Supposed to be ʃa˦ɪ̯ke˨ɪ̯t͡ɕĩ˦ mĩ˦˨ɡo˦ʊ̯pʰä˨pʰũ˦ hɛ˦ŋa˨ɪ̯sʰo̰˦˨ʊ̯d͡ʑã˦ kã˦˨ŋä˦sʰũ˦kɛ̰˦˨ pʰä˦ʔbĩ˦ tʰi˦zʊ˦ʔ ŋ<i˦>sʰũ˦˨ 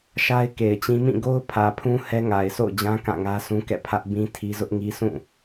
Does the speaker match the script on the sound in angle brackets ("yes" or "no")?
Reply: yes